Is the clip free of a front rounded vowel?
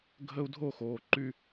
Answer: no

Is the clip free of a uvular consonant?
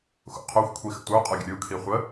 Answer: no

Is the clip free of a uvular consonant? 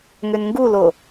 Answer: yes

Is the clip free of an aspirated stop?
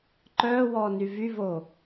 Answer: yes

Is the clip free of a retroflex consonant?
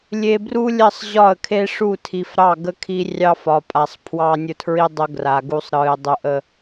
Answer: no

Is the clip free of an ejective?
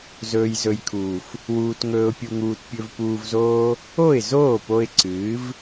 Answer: yes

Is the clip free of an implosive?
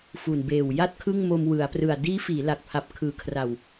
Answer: yes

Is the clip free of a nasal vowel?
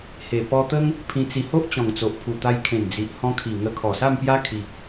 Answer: no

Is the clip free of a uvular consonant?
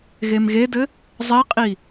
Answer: no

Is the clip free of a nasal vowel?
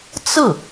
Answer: yes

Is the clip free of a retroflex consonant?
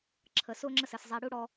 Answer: no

